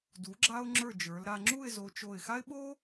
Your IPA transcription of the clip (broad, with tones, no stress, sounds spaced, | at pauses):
d u˩˧ ɡ͡ǁ a˧ ʊ̯ ŋ͡ǁ ə˞˧˩ d͡ʒ ə˞˩˧ l ɾ a˧ ŋ͡ǁ u˥˧ ɪ̯ z o˧ t͡ʃ o˧˩ ɪ̯ x a˥ ɪ̯ ɓ o˥